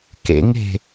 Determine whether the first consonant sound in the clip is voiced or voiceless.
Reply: voiceless